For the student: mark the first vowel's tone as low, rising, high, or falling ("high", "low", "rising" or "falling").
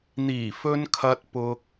low